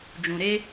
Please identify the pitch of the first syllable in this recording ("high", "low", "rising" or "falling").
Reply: low